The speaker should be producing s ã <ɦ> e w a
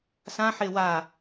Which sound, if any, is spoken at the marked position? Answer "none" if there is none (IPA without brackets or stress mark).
ħ